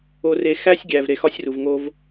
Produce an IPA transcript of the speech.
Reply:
o˨re˨xæ˦sʲɡʲæ˨v ɾe˨ xɒ˦sʲru˨v ŋo˦v

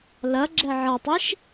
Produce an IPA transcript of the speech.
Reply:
lɐ ɡ͡ǁɛʕɐtˤiʃ

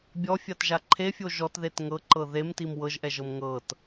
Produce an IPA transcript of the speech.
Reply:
bʲɔfʲatʒa ǃʰefʲo ʒɔtðet ŋɤǃɤ ðemtim wɤʒʔɛʒɤm ŋɤt

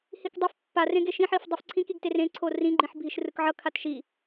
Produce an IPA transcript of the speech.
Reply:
hikdˤef pːarẽɡe ʃĩħif dˤɯfǀʰĩkiɡter ẽǀʰo rĩɡ͡ǃĩħ bʱiʃrɯkʕʌ kʰatʃi

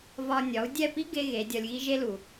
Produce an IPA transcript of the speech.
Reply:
vɒ˧nʲɒ˨˦u̯ dʲɛ˦˨pi˦ ɡe˦ɣe˨˦ dʲɒ˧lʲɣi˦ʒe˦lu˨

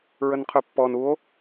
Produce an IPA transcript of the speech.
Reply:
ɹənqʰøpːɔn uo̯

